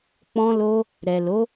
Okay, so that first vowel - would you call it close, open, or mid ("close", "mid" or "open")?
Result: mid